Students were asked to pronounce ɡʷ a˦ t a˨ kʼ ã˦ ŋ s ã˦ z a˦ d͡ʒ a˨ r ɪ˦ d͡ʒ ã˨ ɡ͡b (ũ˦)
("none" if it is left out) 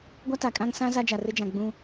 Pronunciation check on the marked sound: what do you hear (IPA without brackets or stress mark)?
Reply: ũ˦